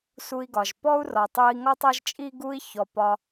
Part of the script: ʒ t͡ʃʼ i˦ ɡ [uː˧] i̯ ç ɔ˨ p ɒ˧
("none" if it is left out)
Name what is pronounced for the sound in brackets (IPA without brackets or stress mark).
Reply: u˧